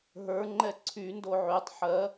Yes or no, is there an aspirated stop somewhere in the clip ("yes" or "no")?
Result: yes